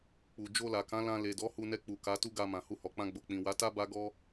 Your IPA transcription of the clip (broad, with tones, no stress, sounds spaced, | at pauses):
k͡p u˨ d͡ʒ o˧ l a˨ k ã˨˦ l ã˧ l e˨ d ɔ˨˦ h u˧ n ɛ˧ k͡p u˨ k a˨˦ t u˦ ɡ a˧ m ã˨ h u˧ h ɔ˨ k͡p ã˧ ɡ͡b o˨ k͡p ĩ˨ w a˨˦ t a˦ b a˦ ɡ ɔ˦